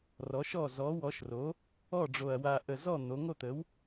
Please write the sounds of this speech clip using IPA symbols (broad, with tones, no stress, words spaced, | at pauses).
rɔ˩˥ʃɔ˥˩ zɔ˩˥wɔ˩˥ʃro˩˥ | ɔ˥˩ɖ͡ʐo˨˩ɐ̯ wa˨˩ʔə˨˩zɔ˥˩ n̪o˩˥ ŋo˥˩t̪ə˩˥w